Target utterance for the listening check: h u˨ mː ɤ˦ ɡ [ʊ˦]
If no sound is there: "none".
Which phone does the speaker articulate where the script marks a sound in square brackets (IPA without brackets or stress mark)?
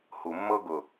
ʊ˨